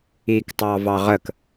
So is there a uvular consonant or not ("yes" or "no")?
yes